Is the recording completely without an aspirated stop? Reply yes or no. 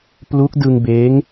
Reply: yes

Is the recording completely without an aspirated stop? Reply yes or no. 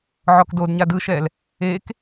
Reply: yes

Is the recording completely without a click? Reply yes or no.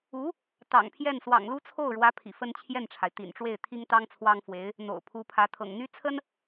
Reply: yes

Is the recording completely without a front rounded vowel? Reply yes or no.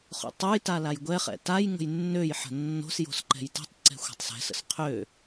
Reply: no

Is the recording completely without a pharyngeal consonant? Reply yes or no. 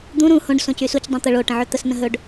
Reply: no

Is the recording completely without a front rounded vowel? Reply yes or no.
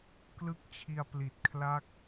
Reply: yes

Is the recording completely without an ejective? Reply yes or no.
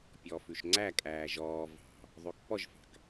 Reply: no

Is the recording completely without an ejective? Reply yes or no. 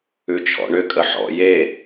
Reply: no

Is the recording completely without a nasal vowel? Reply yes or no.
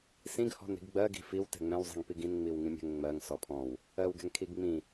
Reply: no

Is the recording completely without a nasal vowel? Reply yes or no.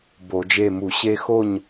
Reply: yes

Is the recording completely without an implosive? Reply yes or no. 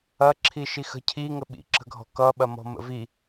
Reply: no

